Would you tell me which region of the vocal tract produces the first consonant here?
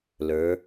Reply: tongue tip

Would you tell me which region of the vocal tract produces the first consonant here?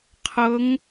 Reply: uvula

